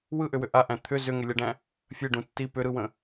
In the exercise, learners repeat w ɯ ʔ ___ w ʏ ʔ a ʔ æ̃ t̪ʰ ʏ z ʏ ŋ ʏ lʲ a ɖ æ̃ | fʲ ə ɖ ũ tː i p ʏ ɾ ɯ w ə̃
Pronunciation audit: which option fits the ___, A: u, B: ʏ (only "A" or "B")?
B